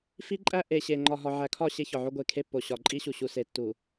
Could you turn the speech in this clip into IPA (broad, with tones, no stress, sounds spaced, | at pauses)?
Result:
f i˦ ǃʼ æ˦ ʔ e˨ ɕ e˨ ŋ͡ǃ ɒ˨ ɦ ɒ˨ ʕ æ˨ kʰ ɒ˦˨ ɕ e˦ ç ɒ˨ ʕ o˦ ɡʷ e˨ kʰ e˦ pː o˨ ɕ ɒ˨ ǃʼ i˦ ɕ u˨ ɕ u˨ s e˨ tː u˨